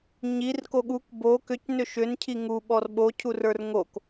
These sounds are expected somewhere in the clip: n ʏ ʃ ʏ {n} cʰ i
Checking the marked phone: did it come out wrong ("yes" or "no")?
no